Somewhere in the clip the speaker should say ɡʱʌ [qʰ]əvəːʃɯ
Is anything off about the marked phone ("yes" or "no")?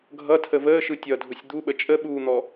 yes